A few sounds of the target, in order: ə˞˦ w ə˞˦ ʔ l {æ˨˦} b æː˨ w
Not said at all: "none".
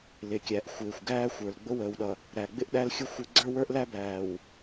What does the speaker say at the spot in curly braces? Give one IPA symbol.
æ˦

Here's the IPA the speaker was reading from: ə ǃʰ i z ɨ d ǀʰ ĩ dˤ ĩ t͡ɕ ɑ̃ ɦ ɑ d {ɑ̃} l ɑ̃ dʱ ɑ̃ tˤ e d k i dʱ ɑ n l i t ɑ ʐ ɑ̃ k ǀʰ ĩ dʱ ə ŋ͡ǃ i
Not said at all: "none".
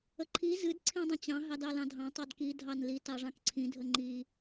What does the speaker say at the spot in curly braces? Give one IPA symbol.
ɑ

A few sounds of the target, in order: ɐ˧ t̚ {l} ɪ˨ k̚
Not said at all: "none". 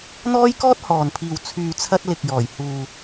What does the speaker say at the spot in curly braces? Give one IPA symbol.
l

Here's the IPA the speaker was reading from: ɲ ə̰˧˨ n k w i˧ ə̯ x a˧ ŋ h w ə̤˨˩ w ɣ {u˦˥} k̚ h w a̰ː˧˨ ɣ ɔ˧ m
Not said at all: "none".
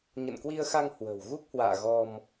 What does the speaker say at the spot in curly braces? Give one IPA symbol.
u˦˥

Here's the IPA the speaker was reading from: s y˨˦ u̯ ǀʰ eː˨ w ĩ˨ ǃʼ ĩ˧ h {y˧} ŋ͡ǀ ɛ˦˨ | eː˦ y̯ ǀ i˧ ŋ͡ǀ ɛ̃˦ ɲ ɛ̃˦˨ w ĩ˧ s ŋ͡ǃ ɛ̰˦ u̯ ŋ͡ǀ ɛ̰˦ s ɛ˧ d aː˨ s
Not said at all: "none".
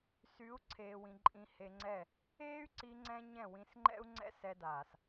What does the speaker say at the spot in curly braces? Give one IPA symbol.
e˧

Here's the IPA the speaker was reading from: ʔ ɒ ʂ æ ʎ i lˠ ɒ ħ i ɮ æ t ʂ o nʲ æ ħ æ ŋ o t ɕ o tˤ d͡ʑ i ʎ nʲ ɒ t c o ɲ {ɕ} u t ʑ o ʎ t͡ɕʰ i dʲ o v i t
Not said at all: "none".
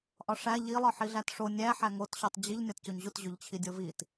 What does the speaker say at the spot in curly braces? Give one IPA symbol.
ʑ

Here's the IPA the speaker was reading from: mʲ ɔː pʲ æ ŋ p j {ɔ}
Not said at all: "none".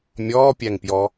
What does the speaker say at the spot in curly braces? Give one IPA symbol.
ɔ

